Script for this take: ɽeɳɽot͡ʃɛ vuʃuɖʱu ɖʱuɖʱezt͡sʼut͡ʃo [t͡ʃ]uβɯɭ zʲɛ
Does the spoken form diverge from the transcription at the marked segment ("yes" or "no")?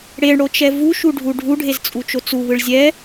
yes